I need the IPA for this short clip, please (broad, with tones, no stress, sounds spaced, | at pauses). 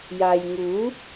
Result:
j aː˨ j ŋ uː˨˥